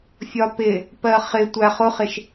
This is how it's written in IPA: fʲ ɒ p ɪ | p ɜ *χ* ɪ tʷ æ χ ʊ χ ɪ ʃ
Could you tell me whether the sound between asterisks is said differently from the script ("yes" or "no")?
no